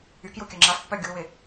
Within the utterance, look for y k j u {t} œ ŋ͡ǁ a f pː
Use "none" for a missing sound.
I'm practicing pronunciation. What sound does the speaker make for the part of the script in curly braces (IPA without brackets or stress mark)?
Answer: kʲ